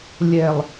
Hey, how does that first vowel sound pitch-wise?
low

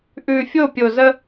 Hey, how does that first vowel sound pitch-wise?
low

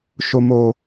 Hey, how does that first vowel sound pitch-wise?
low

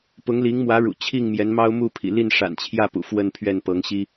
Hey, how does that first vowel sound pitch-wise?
rising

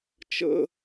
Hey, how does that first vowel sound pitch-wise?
high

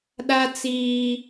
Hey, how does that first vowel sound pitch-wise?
high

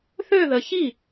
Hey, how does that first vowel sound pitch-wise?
falling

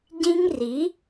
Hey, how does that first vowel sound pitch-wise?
high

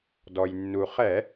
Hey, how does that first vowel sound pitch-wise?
low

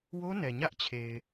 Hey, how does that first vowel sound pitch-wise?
high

